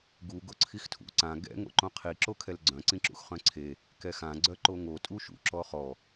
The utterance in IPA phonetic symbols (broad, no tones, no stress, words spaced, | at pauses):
ɡu ɡoǀʰixtʰṵ ǀã ɡɛ̰ ŋo̰ǃõqʰi ǁokʰɛlɡ͡ǀœ̃ ǀĩǁṵxχœ̃ǀʰe | kɛxã ɡ͡ǀœǃoŋo tʼuʃṵ ǁɔχɔ